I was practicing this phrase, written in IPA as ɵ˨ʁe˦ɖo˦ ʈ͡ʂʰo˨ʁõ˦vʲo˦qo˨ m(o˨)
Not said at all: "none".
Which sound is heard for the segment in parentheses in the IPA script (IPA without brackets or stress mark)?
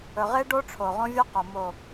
o˨